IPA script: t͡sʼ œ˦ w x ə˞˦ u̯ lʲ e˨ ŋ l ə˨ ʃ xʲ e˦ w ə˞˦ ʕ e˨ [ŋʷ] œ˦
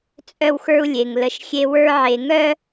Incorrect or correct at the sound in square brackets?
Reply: incorrect: ŋ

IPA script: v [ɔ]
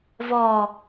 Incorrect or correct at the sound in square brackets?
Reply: correct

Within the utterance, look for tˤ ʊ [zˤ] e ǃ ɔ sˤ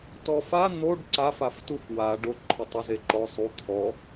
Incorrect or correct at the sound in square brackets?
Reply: incorrect: z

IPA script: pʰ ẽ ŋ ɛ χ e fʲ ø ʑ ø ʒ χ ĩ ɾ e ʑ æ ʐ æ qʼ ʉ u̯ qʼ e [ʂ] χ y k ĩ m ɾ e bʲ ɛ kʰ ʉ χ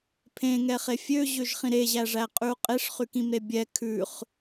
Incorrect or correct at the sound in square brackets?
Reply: correct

